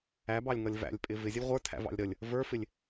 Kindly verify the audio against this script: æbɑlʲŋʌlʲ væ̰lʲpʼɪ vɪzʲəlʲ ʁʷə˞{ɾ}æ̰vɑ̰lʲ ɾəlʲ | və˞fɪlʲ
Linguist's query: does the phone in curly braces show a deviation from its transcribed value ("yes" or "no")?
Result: yes